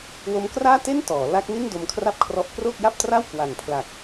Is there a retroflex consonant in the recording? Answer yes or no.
no